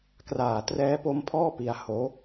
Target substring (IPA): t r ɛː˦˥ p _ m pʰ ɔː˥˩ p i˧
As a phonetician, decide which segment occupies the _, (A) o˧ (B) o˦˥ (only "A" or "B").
B